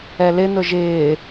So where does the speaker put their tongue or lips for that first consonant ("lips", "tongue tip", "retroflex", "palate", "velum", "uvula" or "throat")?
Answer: tongue tip